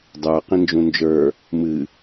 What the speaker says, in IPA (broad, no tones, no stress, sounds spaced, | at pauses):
dˤ ə˞ q ĩ n d͡ʒ ũ n d͡ʒ ə˞ | m ɨ